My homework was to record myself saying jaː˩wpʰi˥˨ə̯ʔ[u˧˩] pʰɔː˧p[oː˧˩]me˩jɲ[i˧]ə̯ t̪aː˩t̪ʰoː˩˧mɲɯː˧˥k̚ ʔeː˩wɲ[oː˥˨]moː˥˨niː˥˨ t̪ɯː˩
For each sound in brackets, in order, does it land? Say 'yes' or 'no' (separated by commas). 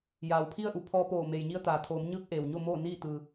yes, yes, yes, no